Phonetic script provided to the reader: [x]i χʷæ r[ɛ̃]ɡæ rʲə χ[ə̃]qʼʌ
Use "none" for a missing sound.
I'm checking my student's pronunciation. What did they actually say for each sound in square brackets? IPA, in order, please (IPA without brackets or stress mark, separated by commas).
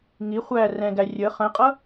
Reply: ŋ, ɛ̃, ə̃